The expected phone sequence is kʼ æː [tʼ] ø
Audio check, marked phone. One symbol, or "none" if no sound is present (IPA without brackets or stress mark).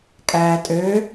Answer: tʼ